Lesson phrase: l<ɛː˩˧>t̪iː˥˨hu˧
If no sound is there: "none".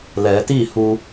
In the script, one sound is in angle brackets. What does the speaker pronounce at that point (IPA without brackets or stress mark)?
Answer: ɛː˩˧